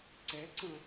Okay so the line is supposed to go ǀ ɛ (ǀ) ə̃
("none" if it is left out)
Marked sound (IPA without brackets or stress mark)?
ǀ